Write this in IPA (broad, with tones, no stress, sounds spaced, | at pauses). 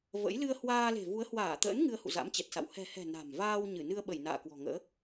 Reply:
v ə̰˧˥ j l ɨ˧ ə̯ h w aː˧ l e̤˨˩ v u˨˦ ə̯ h w aː˧˩ t̪ ə̰ː˧˥ n ŋ ɨ˧ ə̯ h ṵ˧˨ z a̰˧˥ m t͡ɕ ɛ˨˩ t̚ s a̰˧˨ w h ɛ̤˨˩ h ɛ̤˨˩ n a̤˨˩ m v aː˧ w ɲ ɨ˧˩ n ɨ˧ ə̯ ɓ ə˧˩ j n a̰ː˧˨ k w ɔ̤˨˩ ŋ ə̰ː˧˥